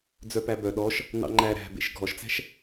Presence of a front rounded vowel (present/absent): present